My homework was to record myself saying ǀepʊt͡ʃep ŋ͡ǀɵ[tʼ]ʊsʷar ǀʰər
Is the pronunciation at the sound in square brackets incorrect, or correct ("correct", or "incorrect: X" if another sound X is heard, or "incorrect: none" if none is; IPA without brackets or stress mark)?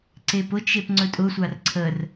correct